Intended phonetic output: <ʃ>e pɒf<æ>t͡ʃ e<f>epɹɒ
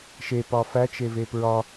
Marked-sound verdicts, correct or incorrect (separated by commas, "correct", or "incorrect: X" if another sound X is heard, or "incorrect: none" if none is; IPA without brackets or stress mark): correct, correct, incorrect: v